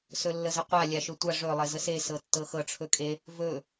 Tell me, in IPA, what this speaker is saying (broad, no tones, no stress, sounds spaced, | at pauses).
s ɵ lː ə z ə qʷ a lʲ a ʃ ɵ tʷ a ʐ ɵ lˠ e z ə s e s ɤ tː ɤ x ɤ ʈ͡ʂʰ ɵ kʼ e | v ɵ